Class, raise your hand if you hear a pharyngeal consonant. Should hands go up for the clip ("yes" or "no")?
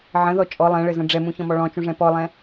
yes